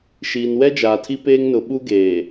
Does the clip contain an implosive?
yes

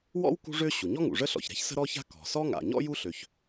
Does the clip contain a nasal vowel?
no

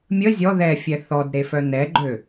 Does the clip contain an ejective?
no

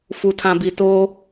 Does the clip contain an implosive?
no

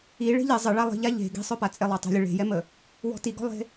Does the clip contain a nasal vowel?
no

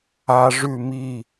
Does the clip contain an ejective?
no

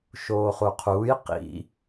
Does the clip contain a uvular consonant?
yes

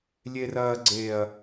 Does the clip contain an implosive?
no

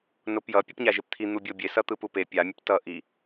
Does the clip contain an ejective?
no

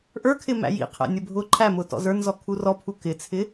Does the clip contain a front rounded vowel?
no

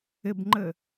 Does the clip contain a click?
yes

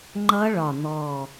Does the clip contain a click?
yes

